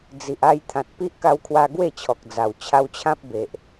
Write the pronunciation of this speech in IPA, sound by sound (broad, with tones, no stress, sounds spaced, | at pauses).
d͡z i˨ ʔ a˧ j t̪ʰ ã˨ t̚ p i˦ ʔ k a˧ w kʰ w a˧ ɡ w e˥˧ t͡ɕʰ ɔ˨ k̚ d͡z a˨˩ w t͡ɕʰ a˧ w t͡ɕʰ ã˦ p̚ b e˨ ʔ